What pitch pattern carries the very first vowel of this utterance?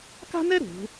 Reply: high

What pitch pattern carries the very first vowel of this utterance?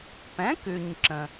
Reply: rising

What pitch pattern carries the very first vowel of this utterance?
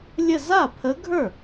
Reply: falling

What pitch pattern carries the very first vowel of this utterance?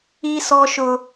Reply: high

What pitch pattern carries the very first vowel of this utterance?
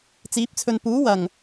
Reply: rising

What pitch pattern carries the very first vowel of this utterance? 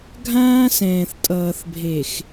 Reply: high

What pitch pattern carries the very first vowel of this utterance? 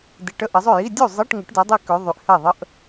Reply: low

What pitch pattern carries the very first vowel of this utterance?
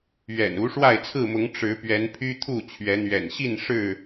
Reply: low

